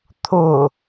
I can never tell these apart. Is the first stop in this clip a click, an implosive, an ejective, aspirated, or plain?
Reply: aspirated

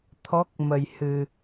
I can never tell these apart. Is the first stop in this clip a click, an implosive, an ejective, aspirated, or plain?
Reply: aspirated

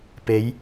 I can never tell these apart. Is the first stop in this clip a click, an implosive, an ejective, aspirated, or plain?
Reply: plain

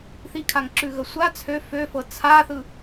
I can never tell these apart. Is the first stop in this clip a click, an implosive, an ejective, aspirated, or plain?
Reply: aspirated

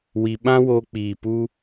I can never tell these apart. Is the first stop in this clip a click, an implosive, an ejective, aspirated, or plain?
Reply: implosive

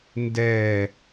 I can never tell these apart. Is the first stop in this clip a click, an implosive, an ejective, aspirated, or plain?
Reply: plain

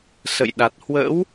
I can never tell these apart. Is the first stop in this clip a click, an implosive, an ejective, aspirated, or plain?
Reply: implosive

